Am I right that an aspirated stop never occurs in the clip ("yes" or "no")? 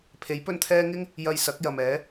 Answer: no